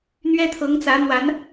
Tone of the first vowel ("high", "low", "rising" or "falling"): high